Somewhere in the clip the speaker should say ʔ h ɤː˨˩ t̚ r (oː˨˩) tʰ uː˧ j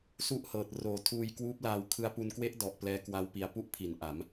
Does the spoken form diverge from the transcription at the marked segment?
no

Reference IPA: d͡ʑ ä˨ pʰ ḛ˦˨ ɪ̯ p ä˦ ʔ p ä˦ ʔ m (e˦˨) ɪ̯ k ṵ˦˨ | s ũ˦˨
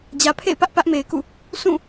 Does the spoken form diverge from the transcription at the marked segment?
yes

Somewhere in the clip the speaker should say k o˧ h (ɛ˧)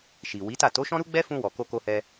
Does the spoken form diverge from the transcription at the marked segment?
no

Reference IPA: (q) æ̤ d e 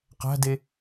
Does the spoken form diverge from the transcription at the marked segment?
no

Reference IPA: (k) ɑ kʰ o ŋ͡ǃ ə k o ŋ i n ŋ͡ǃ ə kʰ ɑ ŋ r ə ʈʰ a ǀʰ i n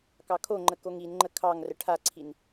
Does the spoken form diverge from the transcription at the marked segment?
no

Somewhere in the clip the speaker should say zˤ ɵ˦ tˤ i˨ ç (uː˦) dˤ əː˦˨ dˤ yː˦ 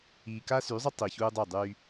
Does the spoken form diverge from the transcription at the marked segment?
no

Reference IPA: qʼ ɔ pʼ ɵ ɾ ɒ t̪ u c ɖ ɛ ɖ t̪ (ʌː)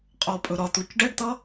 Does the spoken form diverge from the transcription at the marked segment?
yes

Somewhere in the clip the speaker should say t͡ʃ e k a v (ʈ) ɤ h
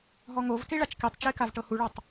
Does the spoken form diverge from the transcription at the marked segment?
no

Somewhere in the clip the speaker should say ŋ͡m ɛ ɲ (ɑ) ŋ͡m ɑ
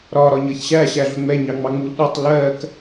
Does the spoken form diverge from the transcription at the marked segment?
no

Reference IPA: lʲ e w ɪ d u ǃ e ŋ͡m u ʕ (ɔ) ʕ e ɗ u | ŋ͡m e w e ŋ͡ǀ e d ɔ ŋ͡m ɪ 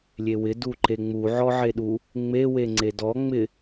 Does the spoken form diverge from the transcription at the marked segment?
no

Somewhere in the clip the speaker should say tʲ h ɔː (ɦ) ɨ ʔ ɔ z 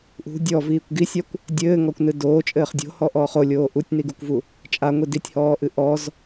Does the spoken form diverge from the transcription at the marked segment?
yes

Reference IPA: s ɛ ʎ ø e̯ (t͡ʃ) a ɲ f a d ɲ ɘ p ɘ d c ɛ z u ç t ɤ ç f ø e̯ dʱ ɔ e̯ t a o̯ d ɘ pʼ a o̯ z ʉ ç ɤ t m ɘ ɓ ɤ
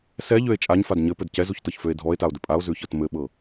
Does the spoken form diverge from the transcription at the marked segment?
yes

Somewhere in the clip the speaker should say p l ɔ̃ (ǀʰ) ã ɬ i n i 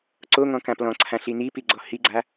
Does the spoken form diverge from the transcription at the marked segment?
no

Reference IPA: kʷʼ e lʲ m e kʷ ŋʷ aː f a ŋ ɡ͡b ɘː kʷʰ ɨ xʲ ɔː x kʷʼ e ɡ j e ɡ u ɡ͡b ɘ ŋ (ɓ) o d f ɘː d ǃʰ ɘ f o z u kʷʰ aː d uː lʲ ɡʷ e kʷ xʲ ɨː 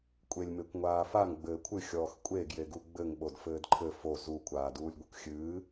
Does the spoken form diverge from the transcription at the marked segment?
no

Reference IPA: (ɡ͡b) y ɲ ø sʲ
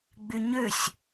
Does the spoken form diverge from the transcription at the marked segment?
no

